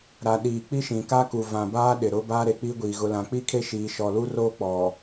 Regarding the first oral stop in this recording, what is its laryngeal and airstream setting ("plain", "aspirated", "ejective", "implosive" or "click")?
implosive